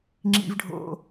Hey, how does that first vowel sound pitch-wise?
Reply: high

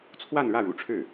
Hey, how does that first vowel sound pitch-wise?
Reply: falling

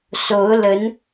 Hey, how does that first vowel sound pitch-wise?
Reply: rising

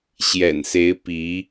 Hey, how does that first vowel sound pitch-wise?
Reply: low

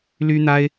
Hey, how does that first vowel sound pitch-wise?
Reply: high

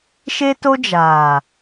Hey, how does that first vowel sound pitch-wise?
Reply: high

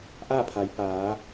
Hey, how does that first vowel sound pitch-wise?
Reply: falling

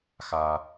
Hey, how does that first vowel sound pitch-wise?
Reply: high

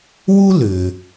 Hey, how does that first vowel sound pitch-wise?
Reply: high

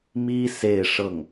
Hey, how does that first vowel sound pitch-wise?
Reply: high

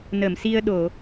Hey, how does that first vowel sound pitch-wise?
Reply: low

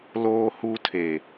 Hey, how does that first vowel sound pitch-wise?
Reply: high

